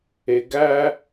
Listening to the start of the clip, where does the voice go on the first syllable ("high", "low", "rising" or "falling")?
low